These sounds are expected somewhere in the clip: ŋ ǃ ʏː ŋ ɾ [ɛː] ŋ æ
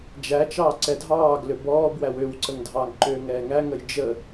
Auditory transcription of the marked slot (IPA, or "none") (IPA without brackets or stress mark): ɛː